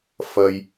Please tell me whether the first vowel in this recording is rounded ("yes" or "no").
no